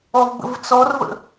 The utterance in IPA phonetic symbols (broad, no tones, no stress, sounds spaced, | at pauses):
ɔ v b ə̰ v t͡s ɔ r v ə̰